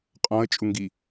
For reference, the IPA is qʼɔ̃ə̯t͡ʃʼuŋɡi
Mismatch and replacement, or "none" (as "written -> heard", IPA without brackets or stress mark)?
none